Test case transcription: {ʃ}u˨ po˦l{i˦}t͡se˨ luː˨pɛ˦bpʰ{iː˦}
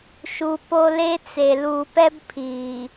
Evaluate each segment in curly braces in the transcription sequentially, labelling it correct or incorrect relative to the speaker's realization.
correct, incorrect: e˦, incorrect: iː˨

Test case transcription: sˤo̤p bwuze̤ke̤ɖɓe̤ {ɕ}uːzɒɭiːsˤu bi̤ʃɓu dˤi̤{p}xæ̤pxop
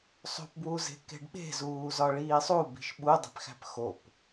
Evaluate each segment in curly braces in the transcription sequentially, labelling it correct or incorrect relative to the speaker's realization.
incorrect: z, correct

